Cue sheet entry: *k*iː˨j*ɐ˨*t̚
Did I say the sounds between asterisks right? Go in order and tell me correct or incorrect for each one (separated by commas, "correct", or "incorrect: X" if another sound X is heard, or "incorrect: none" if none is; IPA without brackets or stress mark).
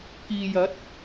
correct, incorrect: ɐ˨˥